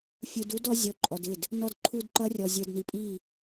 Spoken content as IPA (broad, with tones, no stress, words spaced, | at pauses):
fʲu˨d u˦dɔ˦ zʲɔ˨ǃʼɔ˨dɪ˦˨d | nɔ˨dǃʰu˨d ǃʌ˦rʲɔ˨ zʲə˞˨dni˨pʼi˦˨